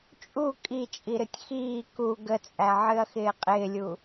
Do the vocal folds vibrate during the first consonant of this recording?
no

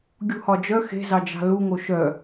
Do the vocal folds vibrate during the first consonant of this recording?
yes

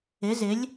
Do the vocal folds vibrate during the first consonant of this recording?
yes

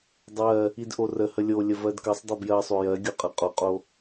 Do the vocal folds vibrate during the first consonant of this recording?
yes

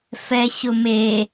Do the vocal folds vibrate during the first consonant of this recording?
no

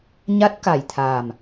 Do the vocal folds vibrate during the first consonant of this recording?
yes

